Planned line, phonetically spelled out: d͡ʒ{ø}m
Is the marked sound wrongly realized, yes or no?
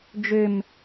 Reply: no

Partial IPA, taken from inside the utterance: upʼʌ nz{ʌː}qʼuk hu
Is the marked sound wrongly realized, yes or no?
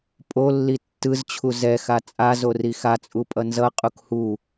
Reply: yes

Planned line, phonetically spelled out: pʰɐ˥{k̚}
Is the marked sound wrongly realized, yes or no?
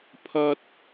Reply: yes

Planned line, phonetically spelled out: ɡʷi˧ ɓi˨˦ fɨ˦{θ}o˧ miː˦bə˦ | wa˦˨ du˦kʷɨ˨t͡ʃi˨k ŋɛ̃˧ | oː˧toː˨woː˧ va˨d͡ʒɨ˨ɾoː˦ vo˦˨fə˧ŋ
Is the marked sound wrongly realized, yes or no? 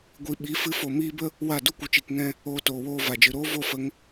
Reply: yes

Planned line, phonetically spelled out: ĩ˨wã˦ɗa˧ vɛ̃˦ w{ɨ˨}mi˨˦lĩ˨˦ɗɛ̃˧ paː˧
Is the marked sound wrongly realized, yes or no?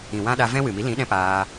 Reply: no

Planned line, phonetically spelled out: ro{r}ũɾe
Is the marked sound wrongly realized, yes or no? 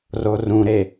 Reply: no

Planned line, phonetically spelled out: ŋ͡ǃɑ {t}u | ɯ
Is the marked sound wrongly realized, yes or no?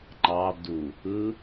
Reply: yes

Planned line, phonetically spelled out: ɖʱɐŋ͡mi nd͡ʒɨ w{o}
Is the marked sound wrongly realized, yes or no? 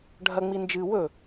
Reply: yes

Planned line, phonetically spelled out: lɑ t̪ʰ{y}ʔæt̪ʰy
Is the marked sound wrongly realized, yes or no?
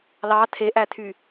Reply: yes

